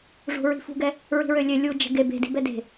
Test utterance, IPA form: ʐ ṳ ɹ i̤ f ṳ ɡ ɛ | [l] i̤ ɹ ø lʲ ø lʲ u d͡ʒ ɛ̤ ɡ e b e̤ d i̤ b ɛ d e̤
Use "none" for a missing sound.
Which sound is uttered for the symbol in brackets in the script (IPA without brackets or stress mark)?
ɹ